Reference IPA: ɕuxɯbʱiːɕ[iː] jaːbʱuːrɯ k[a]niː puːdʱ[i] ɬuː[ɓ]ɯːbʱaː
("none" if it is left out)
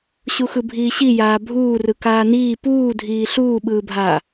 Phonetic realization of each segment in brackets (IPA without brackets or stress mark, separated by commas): i, aː, iː, ɓ